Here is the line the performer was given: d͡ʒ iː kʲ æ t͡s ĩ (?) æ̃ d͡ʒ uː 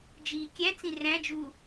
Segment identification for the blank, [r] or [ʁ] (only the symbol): r